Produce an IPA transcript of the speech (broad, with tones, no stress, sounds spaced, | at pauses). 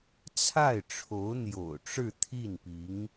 t͡sʰ a˥˩ ɪ̯ ʈ͡ʂʰ o˧˥ ʊ̯ n̪ j o̰˨˩ ʊ̯ ʈ͡ʂ ɻ̩˥˧ t̪ʰ i˥˩ n p i˧˥ ŋ